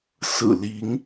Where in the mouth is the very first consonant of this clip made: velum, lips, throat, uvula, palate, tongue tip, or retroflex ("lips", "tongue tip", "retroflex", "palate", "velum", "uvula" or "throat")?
tongue tip